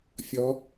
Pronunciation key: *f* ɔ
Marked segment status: incorrect: fʲ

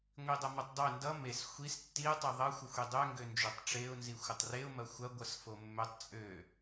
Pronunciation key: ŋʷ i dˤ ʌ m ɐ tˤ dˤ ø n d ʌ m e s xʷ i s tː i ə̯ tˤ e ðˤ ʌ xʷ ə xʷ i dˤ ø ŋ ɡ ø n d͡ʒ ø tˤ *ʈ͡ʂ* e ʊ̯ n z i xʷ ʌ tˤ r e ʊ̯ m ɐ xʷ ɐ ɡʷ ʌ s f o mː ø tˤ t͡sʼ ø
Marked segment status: correct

